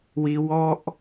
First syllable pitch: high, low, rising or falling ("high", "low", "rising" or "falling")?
high